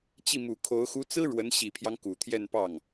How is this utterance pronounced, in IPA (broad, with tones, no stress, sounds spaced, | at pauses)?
t͡ɕ i˥˩ m u˨˩ kʰ o˧˥ ʊ̯ x u˧˥ t͡s ɹ̩˥ ɻ w ə˧˥ n ɕ i˨˩ pʰ j ɑ˦ ŋ k u˨˩ t̪ʰ j ɛ˥˧ n p ɑ˥˩ ŋ